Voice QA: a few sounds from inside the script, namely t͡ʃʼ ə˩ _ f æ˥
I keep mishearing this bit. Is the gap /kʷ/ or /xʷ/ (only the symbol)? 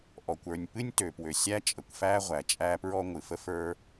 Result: kʷ